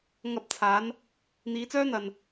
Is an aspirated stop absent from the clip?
no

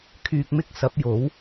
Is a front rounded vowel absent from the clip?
no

